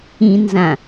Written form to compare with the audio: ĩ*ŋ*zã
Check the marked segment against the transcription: incorrect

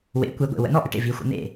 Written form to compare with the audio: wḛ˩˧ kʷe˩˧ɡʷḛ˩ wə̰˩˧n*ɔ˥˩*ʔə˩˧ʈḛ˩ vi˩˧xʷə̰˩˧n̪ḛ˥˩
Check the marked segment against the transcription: correct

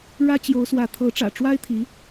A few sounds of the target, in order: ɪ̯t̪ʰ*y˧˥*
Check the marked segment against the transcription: incorrect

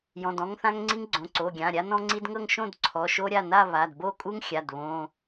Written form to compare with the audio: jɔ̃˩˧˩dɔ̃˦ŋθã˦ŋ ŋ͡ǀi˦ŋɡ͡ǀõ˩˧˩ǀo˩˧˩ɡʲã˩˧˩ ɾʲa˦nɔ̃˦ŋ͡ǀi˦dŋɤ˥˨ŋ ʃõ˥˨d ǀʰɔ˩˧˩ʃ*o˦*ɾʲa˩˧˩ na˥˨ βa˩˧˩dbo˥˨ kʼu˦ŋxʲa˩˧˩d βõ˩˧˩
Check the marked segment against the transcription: correct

